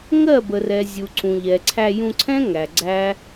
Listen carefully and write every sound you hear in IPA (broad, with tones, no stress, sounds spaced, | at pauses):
ŋ ɜ˦˨ b ə˨ r ɛ˨ zʲ u˨ ǀ ũ˨ ʎ ɛ˨ ǀʰ æ˧ j ũ˧ ǀʰ ɛ̃˦ ŋ æ˨ ɡ͡ǀ æ˦